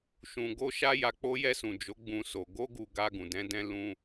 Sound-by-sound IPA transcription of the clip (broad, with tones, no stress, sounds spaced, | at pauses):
ʃ ũ˨ ɡ o˧ ʃ a˦ j a˧ k͡p o˦ j ɛ˧ s ũ˨ d͡ʒ o˨˦ ɡ͡b ũ˦ s o˧ ɡ o˦ ɡ u˧ ɡ a˧ ɡ ũ˨ d ɛ̃˨˦ d ɛ̃˦ l ũ˦